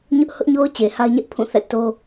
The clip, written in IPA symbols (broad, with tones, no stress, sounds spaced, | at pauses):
ɲ ʊ˦ ʔ h ʊ˦ ʔ ɲ o˦ ʊ̯ t͡ɕ e˨ h a˦ ɪ̯ ɲ ɛ˦ ʔ pʰ ũ˦˨ θ ɛ̰˦˨ t o˦